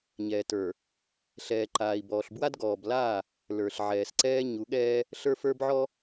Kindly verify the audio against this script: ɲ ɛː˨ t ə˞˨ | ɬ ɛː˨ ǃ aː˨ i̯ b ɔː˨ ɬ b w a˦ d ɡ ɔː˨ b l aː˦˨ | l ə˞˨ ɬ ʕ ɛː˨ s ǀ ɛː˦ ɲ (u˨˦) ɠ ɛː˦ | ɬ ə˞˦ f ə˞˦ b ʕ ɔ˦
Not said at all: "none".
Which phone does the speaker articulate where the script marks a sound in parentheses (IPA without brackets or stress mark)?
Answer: u˨˦